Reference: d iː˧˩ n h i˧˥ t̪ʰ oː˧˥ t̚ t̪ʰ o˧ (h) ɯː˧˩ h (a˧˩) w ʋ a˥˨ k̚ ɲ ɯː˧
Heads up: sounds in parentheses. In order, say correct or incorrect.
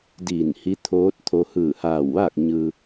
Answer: correct, incorrect

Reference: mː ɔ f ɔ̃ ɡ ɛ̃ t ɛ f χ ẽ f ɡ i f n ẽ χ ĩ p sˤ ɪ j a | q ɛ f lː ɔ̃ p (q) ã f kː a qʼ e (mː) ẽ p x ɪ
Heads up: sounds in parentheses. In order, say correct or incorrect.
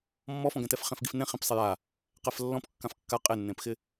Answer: incorrect, incorrect

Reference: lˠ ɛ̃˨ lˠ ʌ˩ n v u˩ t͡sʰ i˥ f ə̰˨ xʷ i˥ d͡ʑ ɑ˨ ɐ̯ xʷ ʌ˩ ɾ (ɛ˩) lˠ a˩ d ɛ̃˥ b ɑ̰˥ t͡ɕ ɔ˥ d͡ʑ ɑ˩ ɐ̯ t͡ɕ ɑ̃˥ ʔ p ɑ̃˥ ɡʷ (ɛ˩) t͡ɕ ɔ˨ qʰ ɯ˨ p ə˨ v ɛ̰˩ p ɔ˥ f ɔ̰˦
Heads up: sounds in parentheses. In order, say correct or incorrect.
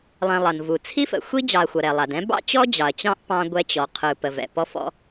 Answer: correct, incorrect

